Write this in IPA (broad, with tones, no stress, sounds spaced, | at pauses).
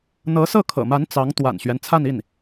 n̪ ɤ˧˥ s ɤ˥˩ kʰ ɤ̰˨˩ m a˧˥ n t͡s ɑ˧˥ ŋ t̪ w a̰˨˩ n ɕ ɥ ɛ˦ n t͡sʰ a˥˧ n i˥˩ n